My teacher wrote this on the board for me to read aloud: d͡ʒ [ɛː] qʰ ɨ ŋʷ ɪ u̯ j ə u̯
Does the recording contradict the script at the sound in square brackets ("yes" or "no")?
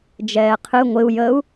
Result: no